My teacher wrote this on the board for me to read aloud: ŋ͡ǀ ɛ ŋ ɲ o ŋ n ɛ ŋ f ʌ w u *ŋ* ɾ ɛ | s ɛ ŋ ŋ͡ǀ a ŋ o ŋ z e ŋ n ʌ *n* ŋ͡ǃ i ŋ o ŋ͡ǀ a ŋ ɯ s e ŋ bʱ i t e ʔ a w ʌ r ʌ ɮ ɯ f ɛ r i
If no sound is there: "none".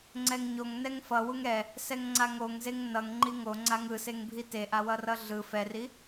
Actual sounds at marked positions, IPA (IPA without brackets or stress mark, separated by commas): ŋ, ŋ